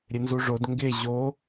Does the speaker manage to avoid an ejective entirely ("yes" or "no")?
yes